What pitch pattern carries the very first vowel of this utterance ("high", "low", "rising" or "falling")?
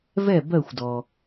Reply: falling